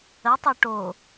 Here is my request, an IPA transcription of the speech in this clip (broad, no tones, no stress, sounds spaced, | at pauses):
ə tˤ ə˞ ʈ o